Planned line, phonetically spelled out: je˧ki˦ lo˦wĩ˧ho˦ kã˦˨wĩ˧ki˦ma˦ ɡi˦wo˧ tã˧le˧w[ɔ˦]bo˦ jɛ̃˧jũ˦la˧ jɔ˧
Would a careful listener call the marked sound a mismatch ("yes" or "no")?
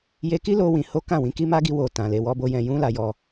no